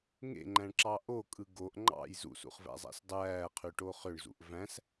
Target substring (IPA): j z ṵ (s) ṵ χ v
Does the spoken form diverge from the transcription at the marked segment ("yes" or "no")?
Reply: no